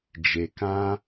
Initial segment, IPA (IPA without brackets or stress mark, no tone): d͡ʒ